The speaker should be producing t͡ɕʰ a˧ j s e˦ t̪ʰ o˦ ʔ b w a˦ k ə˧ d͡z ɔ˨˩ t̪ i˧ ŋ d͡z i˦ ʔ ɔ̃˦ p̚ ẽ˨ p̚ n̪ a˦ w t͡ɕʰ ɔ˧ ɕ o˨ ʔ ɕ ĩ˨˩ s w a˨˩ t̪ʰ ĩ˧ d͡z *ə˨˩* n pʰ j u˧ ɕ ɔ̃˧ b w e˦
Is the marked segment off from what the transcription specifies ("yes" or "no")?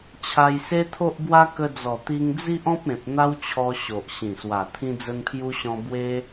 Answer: yes